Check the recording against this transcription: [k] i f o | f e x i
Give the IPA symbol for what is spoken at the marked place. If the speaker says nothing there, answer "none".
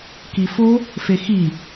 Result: k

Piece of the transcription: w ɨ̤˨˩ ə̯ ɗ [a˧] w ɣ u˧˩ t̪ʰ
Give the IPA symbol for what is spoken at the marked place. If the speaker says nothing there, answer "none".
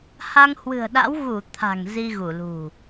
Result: a̰˧˥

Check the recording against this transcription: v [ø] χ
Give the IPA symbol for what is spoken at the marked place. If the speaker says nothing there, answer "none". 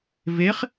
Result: e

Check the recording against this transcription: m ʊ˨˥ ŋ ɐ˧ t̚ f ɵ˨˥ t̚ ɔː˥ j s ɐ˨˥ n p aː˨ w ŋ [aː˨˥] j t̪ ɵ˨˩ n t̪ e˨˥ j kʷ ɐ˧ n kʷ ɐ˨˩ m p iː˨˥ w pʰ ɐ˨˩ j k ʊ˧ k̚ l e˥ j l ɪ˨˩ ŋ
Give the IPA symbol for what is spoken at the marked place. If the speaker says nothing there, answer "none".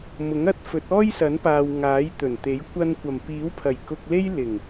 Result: aː˨˥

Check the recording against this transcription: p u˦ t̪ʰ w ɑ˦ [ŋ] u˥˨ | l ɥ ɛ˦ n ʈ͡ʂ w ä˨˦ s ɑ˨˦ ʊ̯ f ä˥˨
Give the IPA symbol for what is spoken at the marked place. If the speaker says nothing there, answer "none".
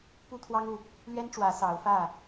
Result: ŋ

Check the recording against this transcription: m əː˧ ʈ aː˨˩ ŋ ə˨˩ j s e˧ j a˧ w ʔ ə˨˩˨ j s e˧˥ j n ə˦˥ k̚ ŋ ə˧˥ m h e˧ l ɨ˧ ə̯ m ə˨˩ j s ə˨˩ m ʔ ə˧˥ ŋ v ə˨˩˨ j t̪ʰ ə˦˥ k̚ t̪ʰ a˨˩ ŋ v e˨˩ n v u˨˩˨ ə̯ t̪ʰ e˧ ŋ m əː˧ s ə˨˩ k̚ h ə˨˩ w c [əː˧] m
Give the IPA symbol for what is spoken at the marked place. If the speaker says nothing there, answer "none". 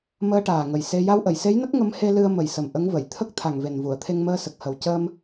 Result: əː˧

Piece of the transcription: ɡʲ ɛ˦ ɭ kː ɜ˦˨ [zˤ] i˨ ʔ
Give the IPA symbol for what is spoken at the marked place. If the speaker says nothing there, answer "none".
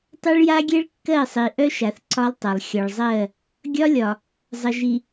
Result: sˤ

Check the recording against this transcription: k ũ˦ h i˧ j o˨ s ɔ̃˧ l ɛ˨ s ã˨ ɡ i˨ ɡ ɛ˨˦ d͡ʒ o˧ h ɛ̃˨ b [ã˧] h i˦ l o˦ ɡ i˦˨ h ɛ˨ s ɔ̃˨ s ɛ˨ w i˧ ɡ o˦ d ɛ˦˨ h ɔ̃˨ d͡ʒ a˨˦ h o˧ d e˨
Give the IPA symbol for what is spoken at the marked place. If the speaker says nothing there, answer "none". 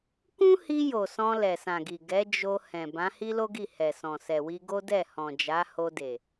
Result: ã˨˦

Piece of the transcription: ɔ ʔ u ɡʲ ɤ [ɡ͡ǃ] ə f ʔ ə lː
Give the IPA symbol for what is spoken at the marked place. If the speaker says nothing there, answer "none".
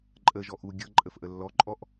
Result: ǃʼ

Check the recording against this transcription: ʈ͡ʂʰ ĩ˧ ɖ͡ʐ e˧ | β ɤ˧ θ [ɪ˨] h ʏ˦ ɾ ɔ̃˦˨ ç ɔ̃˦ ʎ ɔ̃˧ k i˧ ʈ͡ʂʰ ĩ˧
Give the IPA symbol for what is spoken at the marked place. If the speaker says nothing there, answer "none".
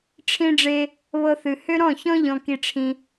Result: ɨ˨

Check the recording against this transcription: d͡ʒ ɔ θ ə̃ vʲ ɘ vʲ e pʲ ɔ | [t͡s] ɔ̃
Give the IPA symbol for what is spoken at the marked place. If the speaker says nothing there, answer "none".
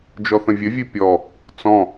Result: t͡s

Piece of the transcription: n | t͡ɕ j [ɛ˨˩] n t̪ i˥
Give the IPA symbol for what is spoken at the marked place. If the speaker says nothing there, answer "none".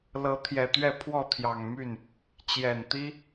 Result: ɛ˨˩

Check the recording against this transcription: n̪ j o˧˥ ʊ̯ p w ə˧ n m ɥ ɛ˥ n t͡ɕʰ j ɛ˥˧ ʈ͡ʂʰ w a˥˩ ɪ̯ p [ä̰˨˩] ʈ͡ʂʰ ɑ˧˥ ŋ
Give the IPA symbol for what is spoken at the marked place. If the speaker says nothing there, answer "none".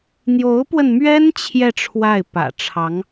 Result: ä̰˨˩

